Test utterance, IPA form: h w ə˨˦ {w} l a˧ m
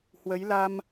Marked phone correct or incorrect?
incorrect